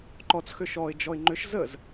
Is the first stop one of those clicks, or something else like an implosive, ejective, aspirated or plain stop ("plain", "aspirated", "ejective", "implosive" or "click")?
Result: click